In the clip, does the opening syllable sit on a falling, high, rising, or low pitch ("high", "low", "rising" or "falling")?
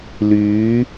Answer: rising